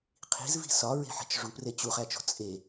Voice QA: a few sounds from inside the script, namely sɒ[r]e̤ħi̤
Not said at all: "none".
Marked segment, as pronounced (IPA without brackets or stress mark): ɹ